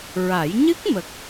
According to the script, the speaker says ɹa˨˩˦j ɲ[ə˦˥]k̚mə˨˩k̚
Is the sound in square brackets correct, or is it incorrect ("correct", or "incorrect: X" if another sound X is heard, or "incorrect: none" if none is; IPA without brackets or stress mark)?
incorrect: ɨ˦˥